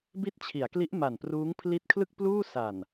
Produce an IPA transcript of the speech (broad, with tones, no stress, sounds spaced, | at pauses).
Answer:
b i˦˥ t̚ t͡ɕʰ i˩˦ a̯ k l i˦˥ ʔ m a˨˩ n p r uː˦˥ ŋ pʰ l i˦˥ t̚ kʰ l ɯ˥˩ k̚ p l uː˥˩ s a˨˩ n